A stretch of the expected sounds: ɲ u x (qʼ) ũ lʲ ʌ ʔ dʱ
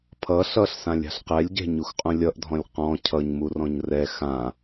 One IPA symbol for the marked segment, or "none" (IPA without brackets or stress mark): qʼ